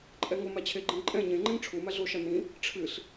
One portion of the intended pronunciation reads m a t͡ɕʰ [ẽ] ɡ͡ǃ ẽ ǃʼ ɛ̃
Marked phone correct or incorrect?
incorrect